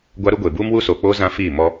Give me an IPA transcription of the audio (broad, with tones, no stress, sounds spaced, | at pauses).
ɡʷ a˦ ɾ u˦ ɡʷ e˨ b uː˦ m w u˦ s oː˨ k͡p oː˦ z ã˦ f iː˦˨ m ɔ˦